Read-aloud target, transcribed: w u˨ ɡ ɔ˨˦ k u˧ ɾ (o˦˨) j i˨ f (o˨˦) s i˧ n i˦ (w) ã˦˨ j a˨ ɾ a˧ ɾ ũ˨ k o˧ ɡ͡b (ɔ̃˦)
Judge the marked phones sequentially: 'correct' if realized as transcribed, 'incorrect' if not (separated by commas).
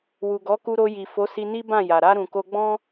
incorrect, correct, incorrect, correct